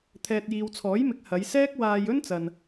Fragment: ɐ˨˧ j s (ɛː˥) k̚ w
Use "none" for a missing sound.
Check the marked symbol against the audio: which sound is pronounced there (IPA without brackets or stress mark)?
ɛː˥